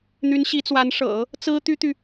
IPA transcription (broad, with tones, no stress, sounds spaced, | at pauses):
n̪ y˧˥ n ɕ i˧˥ t͡s w a˧˥ n ʂ ɤ̰˨˩˦ | t͡s ɹ̩˥ t̪ y˥ t̪ y˨